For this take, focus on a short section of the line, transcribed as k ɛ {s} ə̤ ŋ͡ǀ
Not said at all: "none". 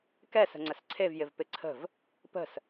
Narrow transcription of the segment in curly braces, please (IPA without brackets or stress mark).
s